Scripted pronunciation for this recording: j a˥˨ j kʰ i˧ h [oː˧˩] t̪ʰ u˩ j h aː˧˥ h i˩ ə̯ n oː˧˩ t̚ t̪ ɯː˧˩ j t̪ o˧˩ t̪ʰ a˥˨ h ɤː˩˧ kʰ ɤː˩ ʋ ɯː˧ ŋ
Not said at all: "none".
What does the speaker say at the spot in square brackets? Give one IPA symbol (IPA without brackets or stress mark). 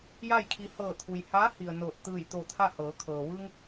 ɤː˧˩